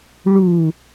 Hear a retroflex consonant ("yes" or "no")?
yes